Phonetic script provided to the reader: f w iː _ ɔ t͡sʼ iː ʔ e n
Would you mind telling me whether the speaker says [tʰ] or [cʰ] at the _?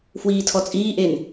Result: tʰ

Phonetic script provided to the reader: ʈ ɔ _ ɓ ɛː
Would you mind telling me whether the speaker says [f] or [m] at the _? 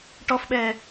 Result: f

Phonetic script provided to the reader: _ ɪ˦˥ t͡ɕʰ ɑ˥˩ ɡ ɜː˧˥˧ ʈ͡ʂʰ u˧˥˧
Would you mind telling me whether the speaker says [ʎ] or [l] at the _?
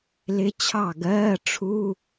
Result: l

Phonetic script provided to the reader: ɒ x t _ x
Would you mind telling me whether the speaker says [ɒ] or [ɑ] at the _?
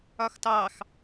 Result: ɑ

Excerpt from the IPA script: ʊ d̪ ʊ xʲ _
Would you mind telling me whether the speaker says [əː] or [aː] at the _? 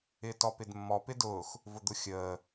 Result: əː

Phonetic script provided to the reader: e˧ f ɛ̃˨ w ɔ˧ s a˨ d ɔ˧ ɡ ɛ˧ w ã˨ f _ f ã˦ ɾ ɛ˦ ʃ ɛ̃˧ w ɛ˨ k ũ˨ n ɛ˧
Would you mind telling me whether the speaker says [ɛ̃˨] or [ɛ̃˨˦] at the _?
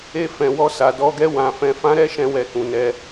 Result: ɛ̃˨˦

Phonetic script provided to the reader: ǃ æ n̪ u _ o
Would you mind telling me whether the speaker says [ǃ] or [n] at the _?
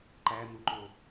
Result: ǃ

